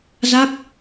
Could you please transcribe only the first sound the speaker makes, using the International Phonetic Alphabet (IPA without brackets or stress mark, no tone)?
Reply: z